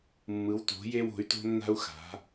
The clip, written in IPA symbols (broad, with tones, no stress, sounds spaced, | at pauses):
mː ɯ˩˧ w t o̤˩˧ j e˧ w o̤˩˧ y̯ t o̤˧ nː a̤˧ u̯ x a̤˩˧